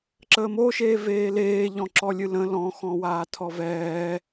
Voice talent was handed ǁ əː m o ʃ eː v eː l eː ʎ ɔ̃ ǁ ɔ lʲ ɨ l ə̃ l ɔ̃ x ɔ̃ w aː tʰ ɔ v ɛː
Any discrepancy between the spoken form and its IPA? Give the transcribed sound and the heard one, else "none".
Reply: none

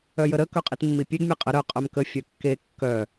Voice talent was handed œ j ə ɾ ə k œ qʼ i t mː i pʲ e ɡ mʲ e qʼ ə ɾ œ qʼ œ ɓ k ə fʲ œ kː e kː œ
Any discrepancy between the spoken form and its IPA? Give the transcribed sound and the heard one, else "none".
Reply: ɓ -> m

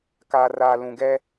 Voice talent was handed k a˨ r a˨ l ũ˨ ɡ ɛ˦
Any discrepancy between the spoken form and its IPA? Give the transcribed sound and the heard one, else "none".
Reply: none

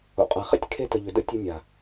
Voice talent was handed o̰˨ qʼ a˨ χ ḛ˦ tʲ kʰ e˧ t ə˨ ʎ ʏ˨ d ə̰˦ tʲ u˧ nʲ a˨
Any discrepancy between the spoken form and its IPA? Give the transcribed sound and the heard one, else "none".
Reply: none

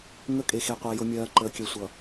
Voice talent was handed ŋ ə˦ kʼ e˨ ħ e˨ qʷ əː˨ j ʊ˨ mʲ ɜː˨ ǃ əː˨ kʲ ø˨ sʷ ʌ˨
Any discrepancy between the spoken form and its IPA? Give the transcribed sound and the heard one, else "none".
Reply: ħ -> x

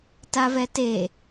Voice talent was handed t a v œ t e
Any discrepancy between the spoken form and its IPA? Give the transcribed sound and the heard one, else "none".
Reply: œ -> ɛ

